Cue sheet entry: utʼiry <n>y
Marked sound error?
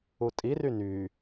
no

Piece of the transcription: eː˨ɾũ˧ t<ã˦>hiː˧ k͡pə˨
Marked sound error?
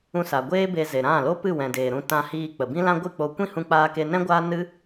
yes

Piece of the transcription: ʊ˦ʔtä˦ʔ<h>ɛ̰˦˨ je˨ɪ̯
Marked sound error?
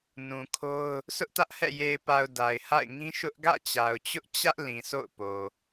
no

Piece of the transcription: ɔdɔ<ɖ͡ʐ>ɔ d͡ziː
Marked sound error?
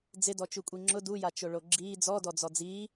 yes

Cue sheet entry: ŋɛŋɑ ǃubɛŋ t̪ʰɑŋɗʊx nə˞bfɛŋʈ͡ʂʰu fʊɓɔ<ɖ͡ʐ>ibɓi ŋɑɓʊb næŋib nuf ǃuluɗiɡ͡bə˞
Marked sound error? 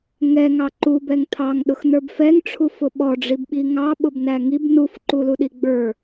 no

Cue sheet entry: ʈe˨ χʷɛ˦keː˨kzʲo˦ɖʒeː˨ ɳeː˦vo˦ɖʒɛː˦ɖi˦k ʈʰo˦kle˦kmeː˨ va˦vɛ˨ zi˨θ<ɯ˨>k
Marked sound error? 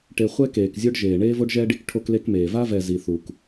yes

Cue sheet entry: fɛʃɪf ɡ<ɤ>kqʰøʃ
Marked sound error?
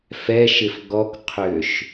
yes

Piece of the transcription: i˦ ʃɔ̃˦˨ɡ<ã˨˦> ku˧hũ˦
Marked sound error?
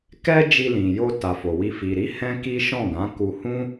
no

